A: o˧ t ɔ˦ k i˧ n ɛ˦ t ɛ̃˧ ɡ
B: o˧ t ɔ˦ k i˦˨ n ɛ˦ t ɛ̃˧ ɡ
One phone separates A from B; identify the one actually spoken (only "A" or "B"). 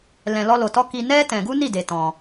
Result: A